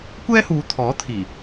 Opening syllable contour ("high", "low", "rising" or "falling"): high